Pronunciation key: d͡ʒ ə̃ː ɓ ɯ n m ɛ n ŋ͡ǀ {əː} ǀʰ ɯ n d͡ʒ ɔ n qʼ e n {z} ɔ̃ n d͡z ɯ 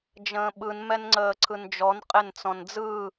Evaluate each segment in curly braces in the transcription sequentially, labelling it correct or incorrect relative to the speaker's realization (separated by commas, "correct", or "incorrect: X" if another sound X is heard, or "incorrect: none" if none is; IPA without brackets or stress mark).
correct, incorrect: t͡s